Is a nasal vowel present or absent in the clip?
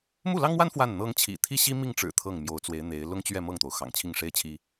absent